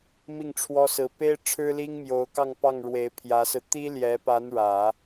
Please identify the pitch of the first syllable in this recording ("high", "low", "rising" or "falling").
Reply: falling